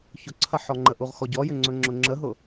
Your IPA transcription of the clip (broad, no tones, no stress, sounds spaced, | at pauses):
ç ʊ ǀʰ ɐ ħ ɔ ŋ͡ǃ ə ʔ u ʁ x ɔ ɟ ɔ j ʏ ŋ͡ǀ ɵ ŋ͡ǁ ʊ ŋ͡ǁ ə ɦ ʊ